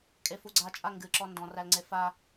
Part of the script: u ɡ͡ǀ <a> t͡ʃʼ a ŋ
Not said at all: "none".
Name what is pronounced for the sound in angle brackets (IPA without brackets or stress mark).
a